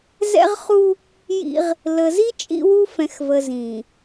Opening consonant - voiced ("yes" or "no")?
yes